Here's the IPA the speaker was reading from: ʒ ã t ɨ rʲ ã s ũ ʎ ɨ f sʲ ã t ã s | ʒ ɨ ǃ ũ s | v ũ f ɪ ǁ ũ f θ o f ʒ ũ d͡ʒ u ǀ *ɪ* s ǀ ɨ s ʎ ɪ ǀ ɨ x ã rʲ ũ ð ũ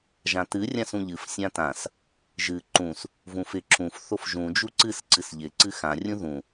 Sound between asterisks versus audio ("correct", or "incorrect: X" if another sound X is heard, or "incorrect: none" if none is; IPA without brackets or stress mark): incorrect: ɨ